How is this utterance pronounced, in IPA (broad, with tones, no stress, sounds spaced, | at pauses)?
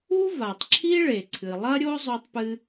u˥ v a˩ tˤ ǁʰ i˥ ɭ e˩ ǀʰ ɨ˩ lˠ ɐ˥ ɾʲ o˥ zˤ ɵ˥ tˤ p ɨ˥